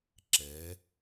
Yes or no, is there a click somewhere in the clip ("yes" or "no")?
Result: yes